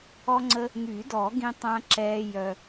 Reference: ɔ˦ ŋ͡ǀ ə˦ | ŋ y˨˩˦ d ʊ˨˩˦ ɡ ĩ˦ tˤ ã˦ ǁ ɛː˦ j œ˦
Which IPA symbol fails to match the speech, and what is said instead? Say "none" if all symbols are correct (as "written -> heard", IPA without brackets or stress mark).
ʊ˨˩˦ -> ɔ˨˩˦